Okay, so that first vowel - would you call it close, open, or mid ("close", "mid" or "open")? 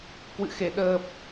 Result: close